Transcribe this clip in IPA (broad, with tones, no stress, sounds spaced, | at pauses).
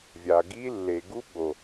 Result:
vʲ a˨ ɡ i˦ lː e˨ ɡ u˦ ɓ o˨